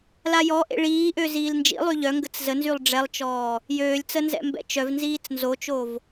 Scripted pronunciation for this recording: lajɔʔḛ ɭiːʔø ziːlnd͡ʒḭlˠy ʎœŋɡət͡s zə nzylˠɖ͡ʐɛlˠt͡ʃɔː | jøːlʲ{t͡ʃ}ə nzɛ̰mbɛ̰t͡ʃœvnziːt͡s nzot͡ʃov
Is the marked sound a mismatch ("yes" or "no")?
yes